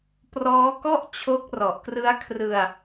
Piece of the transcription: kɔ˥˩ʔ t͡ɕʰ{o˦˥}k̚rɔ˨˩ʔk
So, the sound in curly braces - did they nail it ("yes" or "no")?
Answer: yes